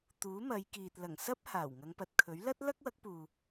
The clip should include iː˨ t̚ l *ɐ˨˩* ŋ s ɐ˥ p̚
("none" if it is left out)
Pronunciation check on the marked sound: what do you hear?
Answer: ɐ˨˩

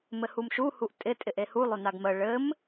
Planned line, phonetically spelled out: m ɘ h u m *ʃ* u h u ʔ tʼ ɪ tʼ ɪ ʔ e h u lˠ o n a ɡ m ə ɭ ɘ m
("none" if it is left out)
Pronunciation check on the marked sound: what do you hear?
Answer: ʃ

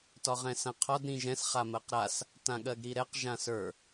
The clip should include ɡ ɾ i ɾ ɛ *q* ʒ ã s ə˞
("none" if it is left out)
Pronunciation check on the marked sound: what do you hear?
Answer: q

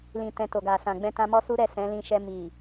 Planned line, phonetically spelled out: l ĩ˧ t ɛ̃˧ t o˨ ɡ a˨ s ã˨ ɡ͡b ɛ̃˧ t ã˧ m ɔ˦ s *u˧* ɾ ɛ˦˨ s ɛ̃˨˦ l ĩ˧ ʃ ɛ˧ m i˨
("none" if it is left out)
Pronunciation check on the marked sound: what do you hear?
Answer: u˦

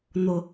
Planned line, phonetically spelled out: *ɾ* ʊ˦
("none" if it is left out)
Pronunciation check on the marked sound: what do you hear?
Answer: n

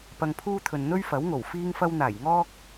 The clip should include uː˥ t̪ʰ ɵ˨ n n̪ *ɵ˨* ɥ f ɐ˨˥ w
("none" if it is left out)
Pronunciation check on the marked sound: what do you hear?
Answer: ɵ˥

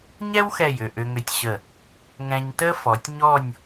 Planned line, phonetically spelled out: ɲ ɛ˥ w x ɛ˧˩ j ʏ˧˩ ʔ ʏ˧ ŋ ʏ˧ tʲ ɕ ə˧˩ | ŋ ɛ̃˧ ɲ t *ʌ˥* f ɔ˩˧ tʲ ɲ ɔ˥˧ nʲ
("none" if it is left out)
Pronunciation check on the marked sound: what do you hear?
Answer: ə˥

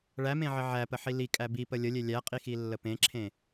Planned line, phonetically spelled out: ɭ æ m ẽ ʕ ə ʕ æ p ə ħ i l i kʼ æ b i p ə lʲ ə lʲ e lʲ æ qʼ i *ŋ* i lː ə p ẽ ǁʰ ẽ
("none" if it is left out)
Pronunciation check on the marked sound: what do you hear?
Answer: x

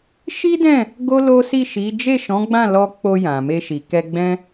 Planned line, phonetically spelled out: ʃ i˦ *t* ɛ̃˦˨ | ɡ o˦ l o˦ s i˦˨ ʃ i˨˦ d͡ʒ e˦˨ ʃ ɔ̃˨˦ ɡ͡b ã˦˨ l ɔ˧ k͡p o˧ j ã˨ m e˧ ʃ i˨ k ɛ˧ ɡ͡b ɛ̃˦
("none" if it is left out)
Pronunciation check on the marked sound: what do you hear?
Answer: d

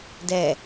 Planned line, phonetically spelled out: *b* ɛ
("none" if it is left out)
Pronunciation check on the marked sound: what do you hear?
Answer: d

